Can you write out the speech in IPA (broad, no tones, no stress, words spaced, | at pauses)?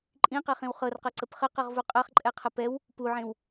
ǃʼĩqɛχĩw χɤrqɤǀəp χəqɤʁvu qʼɐχǃʼɛqʰə pɛw | puʕẽw